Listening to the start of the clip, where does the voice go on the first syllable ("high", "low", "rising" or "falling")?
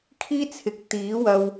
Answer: high